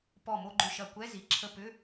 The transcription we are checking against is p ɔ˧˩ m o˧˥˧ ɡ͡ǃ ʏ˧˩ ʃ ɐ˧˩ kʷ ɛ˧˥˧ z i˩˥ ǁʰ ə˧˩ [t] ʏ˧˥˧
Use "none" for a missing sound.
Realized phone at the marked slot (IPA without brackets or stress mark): p